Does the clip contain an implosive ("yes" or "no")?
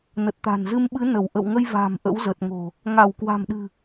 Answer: yes